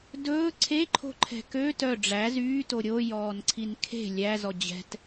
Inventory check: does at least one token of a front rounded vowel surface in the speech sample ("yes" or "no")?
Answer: yes